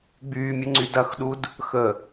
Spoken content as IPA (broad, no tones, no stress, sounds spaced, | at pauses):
ɡ͡b yː mʲ e ŋ͡ǀ y d ɐ x ɗ u d | x ə